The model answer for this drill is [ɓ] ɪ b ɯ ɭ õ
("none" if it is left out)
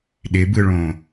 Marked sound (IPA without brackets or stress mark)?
ɗ